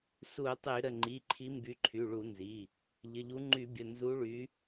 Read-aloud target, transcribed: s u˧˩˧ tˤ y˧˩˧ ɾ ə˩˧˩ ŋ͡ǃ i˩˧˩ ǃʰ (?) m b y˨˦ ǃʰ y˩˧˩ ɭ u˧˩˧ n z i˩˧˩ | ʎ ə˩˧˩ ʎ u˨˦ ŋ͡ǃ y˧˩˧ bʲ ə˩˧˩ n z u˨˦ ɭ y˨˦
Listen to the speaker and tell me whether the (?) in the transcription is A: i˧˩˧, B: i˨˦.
B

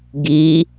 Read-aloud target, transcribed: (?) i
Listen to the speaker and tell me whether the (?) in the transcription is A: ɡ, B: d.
A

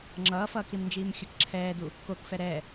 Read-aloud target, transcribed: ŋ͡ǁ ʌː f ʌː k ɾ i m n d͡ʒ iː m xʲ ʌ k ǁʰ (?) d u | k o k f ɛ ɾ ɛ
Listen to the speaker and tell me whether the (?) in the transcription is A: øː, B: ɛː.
B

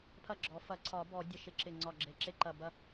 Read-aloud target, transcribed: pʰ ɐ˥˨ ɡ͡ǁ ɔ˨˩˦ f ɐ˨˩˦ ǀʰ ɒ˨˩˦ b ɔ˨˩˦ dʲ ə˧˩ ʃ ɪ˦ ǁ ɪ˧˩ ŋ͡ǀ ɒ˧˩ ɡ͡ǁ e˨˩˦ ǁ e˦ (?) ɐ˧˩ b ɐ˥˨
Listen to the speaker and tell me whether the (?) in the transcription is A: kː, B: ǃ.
B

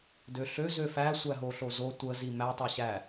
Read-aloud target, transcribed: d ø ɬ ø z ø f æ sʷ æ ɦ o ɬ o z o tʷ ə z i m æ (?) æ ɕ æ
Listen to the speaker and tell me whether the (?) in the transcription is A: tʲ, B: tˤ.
B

